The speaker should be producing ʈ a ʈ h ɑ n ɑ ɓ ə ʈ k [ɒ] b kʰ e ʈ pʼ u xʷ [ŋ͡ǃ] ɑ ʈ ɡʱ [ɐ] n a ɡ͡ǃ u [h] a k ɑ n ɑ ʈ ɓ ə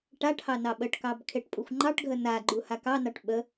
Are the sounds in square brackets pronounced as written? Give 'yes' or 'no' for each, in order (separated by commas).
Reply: no, yes, no, yes